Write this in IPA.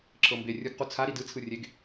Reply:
ǁʰɤmbe rʲɯɡ qut͡sʰa ɾidɯ t͡sʰɯrʲeɡ

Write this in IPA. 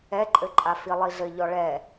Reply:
ɛǃʼɘǃʼa filˠiɮɘʎɔ ɭɛ

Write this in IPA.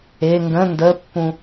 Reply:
e ŋɡə̃ ndəpːũ

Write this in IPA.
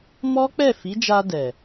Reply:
mɔ˦k͡pɛ˦˨fi˨˦d͡ʒa˧ dɛ˨

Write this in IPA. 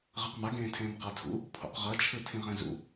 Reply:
ʁɛqmaɡẽːtʰẽːm qatʰṵ | pʰo̰qʁʌt͡ʃʰɯ tʰĩʁɛ̃zṵ

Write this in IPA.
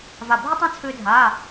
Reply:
va˧˩bʱʏ˥tˤã˥ t͡sʰʏː˥dʱaː˧˥˧

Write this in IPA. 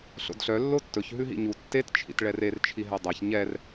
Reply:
ɬo̰dɬœ lːotːɵç ɦʉɦḭɲu tːet t͡ʃʰḭtɭɛrer t͡ʃʰiɦɛdˤɛç ɲɛr

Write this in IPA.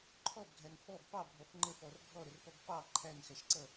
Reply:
ǃʰɔbɡʱæn fɔb pɑbʱɔf ŋ͡ǃəfɔr ɡʱɔɾərpɔb pɑ ǃʰænxæʃǀʌ

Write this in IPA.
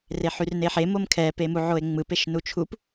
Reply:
reħyrneħe momkʰɛ pemuʕoe̯ŋ͡mɯp eʃnut͡ʃʰup

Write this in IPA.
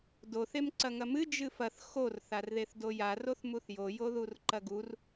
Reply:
doθ emǀɐŋɐmɨ d͡ʒɨfɐθ xor θarðeθdoja roθmuθjo joðurǃɐɡur

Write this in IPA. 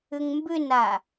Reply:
ʏŋmbʏna

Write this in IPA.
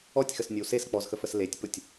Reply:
ɔtʲxəsnʲəw ses k͡pɔzxəfəs letʲpʊtʲ

